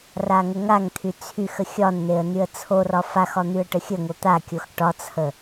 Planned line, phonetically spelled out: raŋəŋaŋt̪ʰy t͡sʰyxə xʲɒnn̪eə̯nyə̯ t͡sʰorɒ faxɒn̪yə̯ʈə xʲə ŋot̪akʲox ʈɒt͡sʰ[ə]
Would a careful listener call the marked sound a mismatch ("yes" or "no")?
no